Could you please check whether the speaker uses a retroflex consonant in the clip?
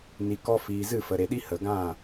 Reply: no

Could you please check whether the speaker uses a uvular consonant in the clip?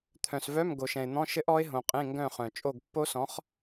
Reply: yes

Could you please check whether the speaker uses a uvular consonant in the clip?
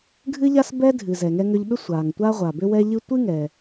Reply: yes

